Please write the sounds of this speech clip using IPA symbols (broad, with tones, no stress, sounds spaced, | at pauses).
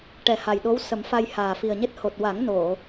ʈ ɛ˨˩ h a˨˩ j ɗ o˧˥ w s ə˨˩˦ m f a˧ j h aː˨˩ f i˨˩ ə̯ ɲ e˦˥ t̚ h o˨˩ t̚ w a˨˩˦ ŋ n o˨˩˨